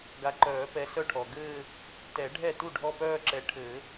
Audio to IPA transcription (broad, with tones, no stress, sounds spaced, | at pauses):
ɡ a˨˦ ǃ œː˨˩˦ p ɛ˨˦ s œ˥˩ ʈʰ ɔ˩ ɡ ɘː˥˧ | t ɛ˨˩˦ ɖʱ ɛ˥˩ t u˥˩ ɖʱ ɔ˥˧ p œː˥˧ ǁ ɛ˨˦ ʈʰ ɘ˨˩˦